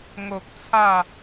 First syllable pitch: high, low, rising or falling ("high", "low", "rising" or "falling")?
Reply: low